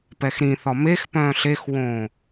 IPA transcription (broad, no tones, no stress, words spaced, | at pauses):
pɛxɾĩθɒ mexpœ̃ː ɬexwõː